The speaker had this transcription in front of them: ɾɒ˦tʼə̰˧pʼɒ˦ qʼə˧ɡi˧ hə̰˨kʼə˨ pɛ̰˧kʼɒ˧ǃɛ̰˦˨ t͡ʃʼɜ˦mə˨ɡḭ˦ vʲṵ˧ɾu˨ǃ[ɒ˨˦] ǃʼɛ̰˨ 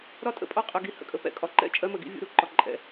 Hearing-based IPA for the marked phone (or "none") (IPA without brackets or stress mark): ɒ˨